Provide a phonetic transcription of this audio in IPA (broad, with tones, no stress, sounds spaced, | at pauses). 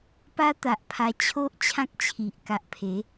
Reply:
p a˦ t̪ a˨ ʔ pʰ a˧ t͡ɕʰ o˦ ʔ t͡ɕʰ ã˦ k̚ t͡ɕʰ i˨ ʔ k a˨ ʔ pʰ e˨˦